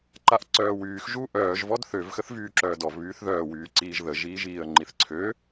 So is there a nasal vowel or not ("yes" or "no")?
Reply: no